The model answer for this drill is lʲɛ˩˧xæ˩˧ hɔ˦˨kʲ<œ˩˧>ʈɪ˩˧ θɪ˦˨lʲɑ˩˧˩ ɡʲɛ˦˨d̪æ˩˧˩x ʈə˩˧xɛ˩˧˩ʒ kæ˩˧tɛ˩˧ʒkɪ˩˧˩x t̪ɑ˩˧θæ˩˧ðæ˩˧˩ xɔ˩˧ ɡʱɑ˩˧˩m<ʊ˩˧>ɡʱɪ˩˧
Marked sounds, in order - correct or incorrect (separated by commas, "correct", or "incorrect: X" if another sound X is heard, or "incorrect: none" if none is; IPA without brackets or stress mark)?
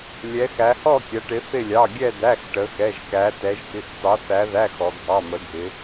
incorrect: æ˩˧, incorrect: ə˩˧